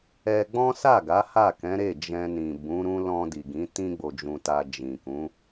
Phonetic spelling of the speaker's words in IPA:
ɛ˧ ɡ͡b ɔ̃˦ s a˦˨ ɡ a˨˦ h a˦˨ k ɛ̃˨˦ ɾ e˦˨ d͡ʒ ɛ̃˧ n ĩ˨ b ũ˨˦ ɾ ũ˦ l ɔ̃˧ d i˨ ɡ ĩ˨˦ t ĩ˦ ɡ͡b o˧ d͡ʒ ũ˧ t a˧ d͡ʒ ĩ˨ k ũ˨˦

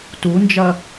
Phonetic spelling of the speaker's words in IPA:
t u n d͡ʒ ɐ

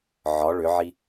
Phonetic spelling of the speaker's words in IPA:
ʕ ɒ ɭ ʏ ʕ i

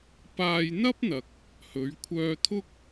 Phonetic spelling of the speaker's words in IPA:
p aː˧ j n̪ ɐ˥ p̚ n̪ ɐ˨ k̚ | h ɵ˨˧ ɥ kʷʰ œː˧ t̪ʰ ʊ˥ k̚

